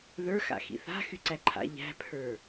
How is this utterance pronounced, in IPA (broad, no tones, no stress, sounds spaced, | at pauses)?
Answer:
ð ə˞ x a̰ x ḭ θ a̤ x y ǀ æ ǃʰ a̰ ʎ æ̤ pʰ ə˞